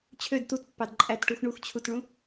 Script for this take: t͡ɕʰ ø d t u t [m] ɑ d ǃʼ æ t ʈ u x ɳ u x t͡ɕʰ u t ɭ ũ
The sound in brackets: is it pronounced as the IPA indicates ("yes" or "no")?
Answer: no